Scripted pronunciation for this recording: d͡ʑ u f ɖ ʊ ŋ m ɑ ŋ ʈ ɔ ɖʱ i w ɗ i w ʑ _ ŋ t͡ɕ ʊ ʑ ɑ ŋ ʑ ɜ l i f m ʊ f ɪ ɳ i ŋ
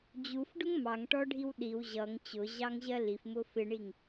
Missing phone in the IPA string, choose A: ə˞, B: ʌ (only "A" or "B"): B